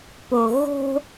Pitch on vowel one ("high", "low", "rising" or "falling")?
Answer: low